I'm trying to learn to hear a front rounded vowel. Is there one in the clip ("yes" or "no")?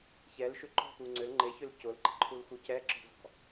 yes